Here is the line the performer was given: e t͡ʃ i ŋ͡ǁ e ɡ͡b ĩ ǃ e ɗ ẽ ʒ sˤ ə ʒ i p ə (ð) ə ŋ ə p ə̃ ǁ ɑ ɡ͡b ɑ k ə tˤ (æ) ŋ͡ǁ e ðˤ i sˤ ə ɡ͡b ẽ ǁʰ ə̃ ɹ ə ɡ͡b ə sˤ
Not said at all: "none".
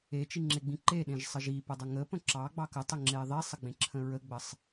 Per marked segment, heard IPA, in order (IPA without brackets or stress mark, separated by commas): dˤ, ə